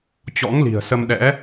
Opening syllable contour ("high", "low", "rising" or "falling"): rising